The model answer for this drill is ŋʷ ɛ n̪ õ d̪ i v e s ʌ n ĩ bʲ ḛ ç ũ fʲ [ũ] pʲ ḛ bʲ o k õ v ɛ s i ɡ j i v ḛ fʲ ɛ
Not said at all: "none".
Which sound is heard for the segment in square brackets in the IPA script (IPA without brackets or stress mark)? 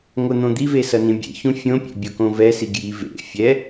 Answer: õ